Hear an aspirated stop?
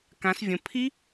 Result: yes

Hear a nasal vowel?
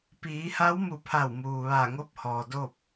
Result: no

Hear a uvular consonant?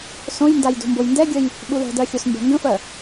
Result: no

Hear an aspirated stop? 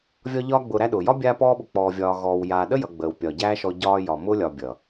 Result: no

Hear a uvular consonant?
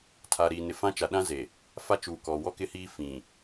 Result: no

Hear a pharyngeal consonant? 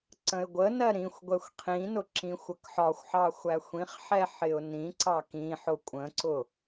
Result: yes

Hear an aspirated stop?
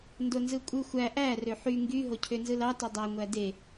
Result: yes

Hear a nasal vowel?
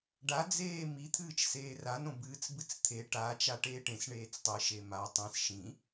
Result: yes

